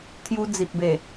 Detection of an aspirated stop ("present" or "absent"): present